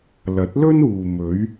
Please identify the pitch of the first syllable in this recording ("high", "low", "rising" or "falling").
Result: rising